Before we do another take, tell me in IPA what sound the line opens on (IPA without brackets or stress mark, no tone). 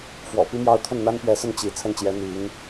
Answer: f